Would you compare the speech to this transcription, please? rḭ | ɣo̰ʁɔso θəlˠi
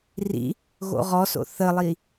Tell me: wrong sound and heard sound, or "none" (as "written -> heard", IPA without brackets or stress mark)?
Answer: o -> o̰